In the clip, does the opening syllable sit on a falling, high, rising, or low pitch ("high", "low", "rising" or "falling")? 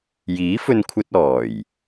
rising